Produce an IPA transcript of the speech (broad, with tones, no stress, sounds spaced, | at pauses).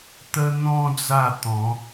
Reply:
t̪ ə˧ n̪ ɔ̃˧ d͡z a˥˧ t̪ ɔ̃˨˦